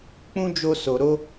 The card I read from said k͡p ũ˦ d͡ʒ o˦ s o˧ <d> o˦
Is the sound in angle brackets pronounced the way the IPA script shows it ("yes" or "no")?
no